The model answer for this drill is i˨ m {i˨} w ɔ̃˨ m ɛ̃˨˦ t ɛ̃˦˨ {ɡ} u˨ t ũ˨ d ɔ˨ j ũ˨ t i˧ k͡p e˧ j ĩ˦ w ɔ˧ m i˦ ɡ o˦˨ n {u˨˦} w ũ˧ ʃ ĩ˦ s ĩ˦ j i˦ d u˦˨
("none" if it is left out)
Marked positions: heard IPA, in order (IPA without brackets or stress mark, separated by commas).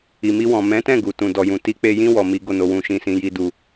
i˧, ɡ, o˨˦